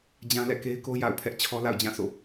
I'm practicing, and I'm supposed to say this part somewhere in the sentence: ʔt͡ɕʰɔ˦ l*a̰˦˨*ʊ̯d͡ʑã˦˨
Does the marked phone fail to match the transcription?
no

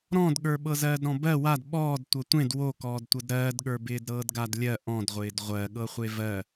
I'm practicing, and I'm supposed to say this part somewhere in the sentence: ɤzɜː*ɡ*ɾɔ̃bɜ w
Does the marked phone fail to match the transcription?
yes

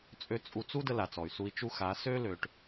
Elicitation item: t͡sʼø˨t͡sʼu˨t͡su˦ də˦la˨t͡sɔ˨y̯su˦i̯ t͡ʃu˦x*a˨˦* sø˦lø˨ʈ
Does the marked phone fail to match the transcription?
no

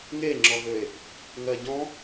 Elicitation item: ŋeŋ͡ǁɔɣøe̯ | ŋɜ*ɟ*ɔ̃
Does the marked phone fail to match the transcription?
no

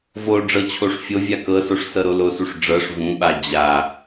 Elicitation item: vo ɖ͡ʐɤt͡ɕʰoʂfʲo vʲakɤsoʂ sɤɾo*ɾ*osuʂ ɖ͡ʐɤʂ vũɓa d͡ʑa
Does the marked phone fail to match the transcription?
yes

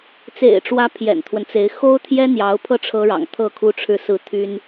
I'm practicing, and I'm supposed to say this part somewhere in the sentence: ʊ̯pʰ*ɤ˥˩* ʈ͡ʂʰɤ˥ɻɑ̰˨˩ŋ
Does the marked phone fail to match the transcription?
no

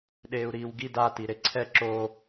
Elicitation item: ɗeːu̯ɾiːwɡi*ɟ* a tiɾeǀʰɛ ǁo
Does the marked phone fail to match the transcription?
yes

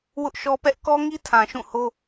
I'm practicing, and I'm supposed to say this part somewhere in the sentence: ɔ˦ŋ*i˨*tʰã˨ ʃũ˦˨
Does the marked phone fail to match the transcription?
yes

